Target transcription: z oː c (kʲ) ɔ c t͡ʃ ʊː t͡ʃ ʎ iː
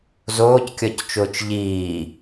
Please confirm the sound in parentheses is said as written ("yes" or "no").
yes